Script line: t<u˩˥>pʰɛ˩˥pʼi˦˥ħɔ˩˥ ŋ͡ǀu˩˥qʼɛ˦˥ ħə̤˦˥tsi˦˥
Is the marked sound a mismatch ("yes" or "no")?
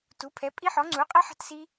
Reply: no